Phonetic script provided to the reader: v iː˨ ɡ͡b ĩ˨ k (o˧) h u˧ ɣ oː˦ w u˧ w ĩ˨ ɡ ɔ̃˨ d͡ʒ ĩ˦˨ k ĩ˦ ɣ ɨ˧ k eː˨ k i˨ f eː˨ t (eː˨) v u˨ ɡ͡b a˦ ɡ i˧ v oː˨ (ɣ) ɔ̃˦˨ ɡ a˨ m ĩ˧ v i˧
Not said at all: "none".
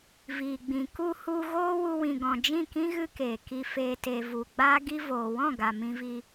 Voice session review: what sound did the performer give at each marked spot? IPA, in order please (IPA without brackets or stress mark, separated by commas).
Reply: u˧, e˨, w